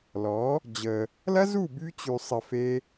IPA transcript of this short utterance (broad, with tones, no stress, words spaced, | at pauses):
lɔ˨˦ | d͡ʑə˧ | lɐ˦zu˦˨ by˦ t͡ɕy˧sˤɘ˧ fe˦